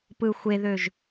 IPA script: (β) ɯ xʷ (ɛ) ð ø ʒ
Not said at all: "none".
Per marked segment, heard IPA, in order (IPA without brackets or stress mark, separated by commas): p, e